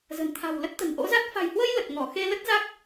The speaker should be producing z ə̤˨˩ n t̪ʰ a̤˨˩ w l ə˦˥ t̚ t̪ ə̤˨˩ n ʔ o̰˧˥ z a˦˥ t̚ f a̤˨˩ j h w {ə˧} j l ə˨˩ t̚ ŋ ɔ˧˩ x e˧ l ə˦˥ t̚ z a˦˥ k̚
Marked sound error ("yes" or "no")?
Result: no